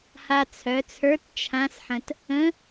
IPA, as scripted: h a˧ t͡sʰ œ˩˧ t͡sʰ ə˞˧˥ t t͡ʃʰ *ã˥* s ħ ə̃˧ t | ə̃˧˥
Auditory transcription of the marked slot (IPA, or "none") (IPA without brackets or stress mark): ã˧˥